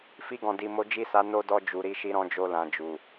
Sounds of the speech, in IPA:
f i˧ ɡ ɔ̃˨ d i˨ m o˨˦ d͡ʒ i˦˨ s a˨˦ n o˧ d ɔ˧ d͡ʒ u˨ ɾ i˧ ʃ i˧ ɾ ɔ̃˧ d͡ʒ o˧ l ã˨ d͡ʒ u˨

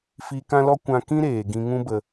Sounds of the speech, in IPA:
f i˧ k ã˦ l ɔ˦ kʷ ã˧ k ĩ˦ ɾ eː˨ ɡ ĩ˧ ŋ ũ˦ b ə˧

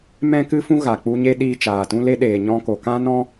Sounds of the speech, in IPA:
m ɛ̃˦ k ɨ˦ f ũ˦ ɣ a˨ k͡p u˧ ɲ e˦ ɗ iː˧ t͡ʃ aː˨ t ũ˧ l e˧ ɗ eː˨ ɲ ɔ̃˧ k o˨ k ã˦ n ɔ̃˦

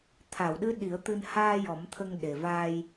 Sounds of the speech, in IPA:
t̪ʰ a˨˩˨ w ɗ ɨ˧˥ ɗ i˨˩˦ ə̯ t̪ ɨ˧ n h aː˧ j ɔ˨˩˦ m t̪ʰ ə˧ ŋ ɗ e˨˩ v aː˧ j

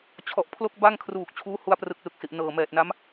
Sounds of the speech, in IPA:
t͡ɕʰ ɔ˨˩ ʔ pʰ l o˦˥ k̚ b a˥˩ ŋ kʰ r uː˨˩ k̚ t͡ɕʰ uː˦˥ h u˧ a̯ p r ɯ˨˩ k̚ l ɯ˨˩ k̚ s i˨˩ ʔ n ɤː˨˩ m ɛː˨˩ t̚ n a˦˥ m

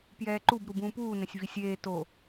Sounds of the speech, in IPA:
p j ɛː ǃ u b ɾ u b ũː p uː n ɛ̃ sʲ v i sʲ eː t o

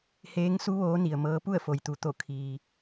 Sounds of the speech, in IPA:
h eː˧˥ ŋ s u˧˥ ʋ oː˧˥ n i˩ ə̯ m ɤː˧˥ p u˥˨ ə̯ f o˩ j t̪ u˩˧ t̪ o˧˩ kʰ iː˩

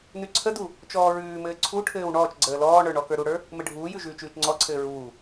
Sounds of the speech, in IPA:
n ʉ ǀʰ ə d u | t͡ʃ ɔː ɹ ʉː m ɘː ǀʰ u ʈʰ ɘː w ɳ ɔː t͡ʃ ɡ͡ǀ əː l ɔː ɳ ə˞ ɳ ɔ k ə˞ ɾ u ɽ ə˞ | m ɘ ɖʱ uː j ʉ ʒ ʉː t͡ʃ ʉː t͡ʃ ŋ͡ǀ ɔ ǀʰ ɘː ɹ uː

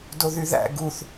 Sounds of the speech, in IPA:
d o ð y ð æ̰ ɡ u θ

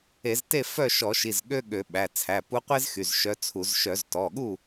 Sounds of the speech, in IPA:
e˧˩˧ z t e˥˨ f œ˥˨ ʃ ɔ˧˩˧ ʃ i˩˧˩ z ɠ ø˥ ɠ ø˧˩˧ ɓ æ˩˧˩ t͡sʰ æ˩˧˩ p u˧˥ qʷ e˥ z x y˩˧˩ z ʃ œ˧˥ t͡sʰ u˧˩˧ z ʃ œ˧˩˧ z t ɔ˩˧˩ ɠ u˥˨

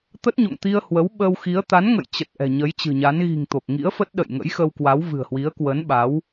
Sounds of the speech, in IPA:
t̪ ə˦˥ t̚ ɲ o̰˧˨ ŋ t̪ i˧ ə̯ h w ə˨˦ w ɓ ə˧ w x i˨˦ ə̯ t̪ a˨˦ n ŋ ə̰˧˨ j t͡ɕ ə˨˩ t̚ ʔ ɛ̤˨˩ ɲ ə˨˦ j t͡ɕ ɨ̤˨˩ ɲ a˨˦ n ɣ i̤˨˩ ŋ t̪ o˨˩ k̚ ŋ ḭ˧˥ ə̯ f ə˦˥ t̚ ɗ ə̰˧˨ j ŋ ə̰˧˥ j x ə˧ w k w a˨˦ w v ɨ̤˨˩ ə̯ h w i˨˦ ə̯ k w ə˨˦ n ɓ a˨˦ w

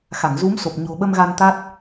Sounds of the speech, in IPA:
x a˧˩ ŋ z u˨˦ m s o˨˩ p̚ ɲ o̤˨˩ ɓ ə˧ m ɣ a˧ n t̪ a˦˥ t̚

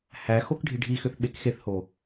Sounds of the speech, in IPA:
h æ x o k ɖʱ i ɖʱ i x ʏ θ ɓ e k x e θ h o

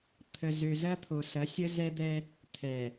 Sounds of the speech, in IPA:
t̪ʰ ə˨ z ø˨ z ɐ˦ t̪ʰ o˨ s ɐ˨˦ sʲ ə˦ z ɛ˦ d̪ ɛ˦ | t̪ʰ ɛ˨

